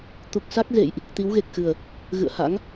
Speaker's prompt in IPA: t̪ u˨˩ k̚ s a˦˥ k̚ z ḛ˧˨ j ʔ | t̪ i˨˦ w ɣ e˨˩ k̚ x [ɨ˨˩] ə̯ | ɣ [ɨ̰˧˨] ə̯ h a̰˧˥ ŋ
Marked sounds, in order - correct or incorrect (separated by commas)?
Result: correct, correct